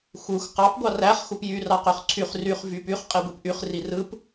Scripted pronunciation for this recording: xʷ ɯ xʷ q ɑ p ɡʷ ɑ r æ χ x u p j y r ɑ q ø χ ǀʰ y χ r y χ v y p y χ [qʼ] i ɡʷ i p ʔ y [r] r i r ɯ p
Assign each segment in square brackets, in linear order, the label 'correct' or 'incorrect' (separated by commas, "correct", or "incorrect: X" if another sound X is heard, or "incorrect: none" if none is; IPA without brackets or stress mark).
correct, incorrect: χ